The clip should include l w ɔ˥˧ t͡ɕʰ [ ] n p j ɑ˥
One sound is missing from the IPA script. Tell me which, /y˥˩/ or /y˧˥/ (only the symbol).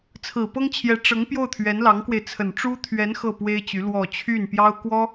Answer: y˥˩